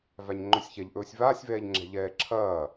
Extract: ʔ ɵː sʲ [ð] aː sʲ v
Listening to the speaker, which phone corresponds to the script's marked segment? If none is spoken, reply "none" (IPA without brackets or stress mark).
v